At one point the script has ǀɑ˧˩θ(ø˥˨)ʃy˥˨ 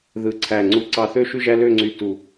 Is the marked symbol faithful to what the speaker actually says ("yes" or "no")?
yes